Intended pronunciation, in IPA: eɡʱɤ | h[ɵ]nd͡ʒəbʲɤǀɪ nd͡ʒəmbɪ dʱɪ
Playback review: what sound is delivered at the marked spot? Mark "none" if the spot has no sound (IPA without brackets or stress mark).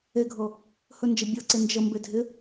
ɵ